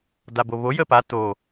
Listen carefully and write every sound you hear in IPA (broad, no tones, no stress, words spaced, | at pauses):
daboβo jəpa to